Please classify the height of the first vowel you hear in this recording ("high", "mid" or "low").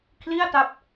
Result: high